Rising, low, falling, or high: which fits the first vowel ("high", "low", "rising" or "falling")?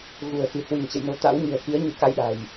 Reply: low